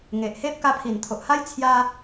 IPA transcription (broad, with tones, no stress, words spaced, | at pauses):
ŋe˨ʔhe˦p̚ ka˧pʰi˨˩nt̪ʰo˨ʔha˦j t͡sʰja˦